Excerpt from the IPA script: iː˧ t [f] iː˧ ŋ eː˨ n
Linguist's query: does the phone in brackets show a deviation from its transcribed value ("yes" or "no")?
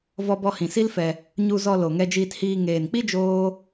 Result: yes